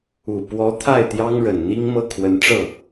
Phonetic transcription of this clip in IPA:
u˨˩ p w ɔ˧˥ t̪ʰ a˥˩ ɪ̯ t̪ j ɑ˥ ŋ ɻ ə˨˩ n n̪ i˥ ŋ m ɤ˥˩ kʰ w ə˧˥ n ʈ͡ʂ ɤ˥˩

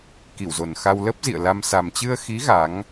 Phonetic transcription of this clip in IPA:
k i˧˩ w z o˨˩ n x a˧ w l ə˦˥ p̚ z ḭ˧˨ ə̯ l a˧ m s a˨˩ m t͡ɕ ɨ˧ ə̯ x i˨˦ ɣ a˨˦ ŋ

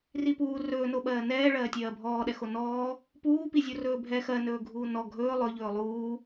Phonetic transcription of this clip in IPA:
r i p uː r ɵː n o ɓ ɜː n ɛː ɭ ɜː tʲ ɜː bʱ ɔː ɗ ɛ x o n ɔː | p uː p i zʲ o r ɵː bʱ ɛ x ɜ n ɵː ɡʱ uː n ɔ ɡʱ ɵː lˠ ɵ ʎ ɵː lˠ uː

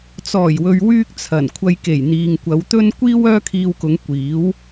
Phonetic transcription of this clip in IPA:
t͡s ɔː˨˩ j w ɵ˨ ɥ w yː˥ k̚ t͡sʰ ɐ˨˩ n kʷʰ ɐ˧ j k e˨˩ j n̪ iː˨ ŋ kʷ ɐ˨˧ w t̪ ɵ˥ n kʷ iː˥ w œː˥ kʰ iː˧ w k ʊ˨˧ ŋ kʷ iː˨˥ w

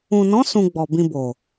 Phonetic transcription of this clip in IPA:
ũ˨ n ɔ̃˨˦ s ũ˧ ɡ͡b ɔ˨ b ĩ˧ b o˨

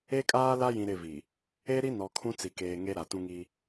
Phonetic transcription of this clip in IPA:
e˦ kʼ aː˦ l a˦ j ĩ˨ ɾ ɪ˦˨ v i˨ | e˦ ɾ i˦ n ɔ˨ kʰ ũ˦ t͡s i˨ k eː˨ ŋ e˦ ɾ a˨ t ũ˦ ŋ i˦

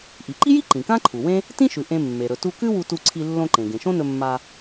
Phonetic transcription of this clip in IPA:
ʔ i˩ ǃ i˥ j i˥ ǃ ĩ˩ k ã˥ ǃʰ u˩ w ẽ˥ | t ĩ˥ ʃ ʉ˩ ʔ ẽ˧ mː e˩ ɾ ɵ˩ t u˧ k ʉ˥ w u˧ t u˧ ǀʰ i˧ lː õ˧ ǃ ẽ˩ ɡ ẽ˩ ʃ õ˥ n ɵ˧ mː a˧

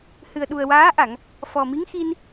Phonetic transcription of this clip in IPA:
h ɨ˨˩ ə̯ ɗ u˨˩ ə̯ w aː˧˥ ʔ a˨˩˨ ŋ | f ɔ˨˩ m i˧˥ ŋ x i˧ n

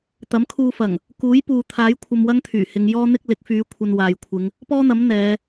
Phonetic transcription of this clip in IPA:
t̪ ɐ˨˥ m kʰ uː˧ f ɐ˨˩ ŋ | k uː˨˥ j p uː˨ t̪ʰ aː˨˥ j kʷʰ ɐ˧ m w ɐ˥ ŋ t̪ʰ yː˨˩ h ɪ˨˧ ŋ j ɔː˥ n̪ ɪ˥ k̚ l ɪ˨˥ k̚ f yː˨˧ kʷʰ ɐ˧ n w aː˨ j kʷʰ ɪ˨˧ ŋ | p ɔː˥ n̪ ɐ˨˥ m n̪ ɛː˨˧

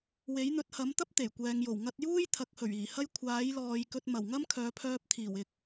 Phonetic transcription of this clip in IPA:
w e˨˥ j n̪ ɵ˨˥ t̚ h ɐ˨˥ m t̪ ɐ˥ p̚ t̪ e˨˩ j kʷ ɛː˨ ŋ j o˨˩ w ŋ ɐ˧ t̚ j uː˥ j t̪ʰ ɐ˨˥ k̚ h ɵ˨˩ ɥ iː˨˩ h ɐ˥ j kʷʰ aː˨˥ j l ɔː˨ j k ɵ˧ t̚ m ɐ˨˩ w ŋ ɐ˥ m kʰ œː˨˧ pʰ œː˧ p̚ t̪ʰ iː˨˩ w ɪ˧ k̚

